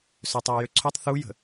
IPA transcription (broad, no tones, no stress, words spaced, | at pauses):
søtˤøe̯jøǀʰotˤ θujə̤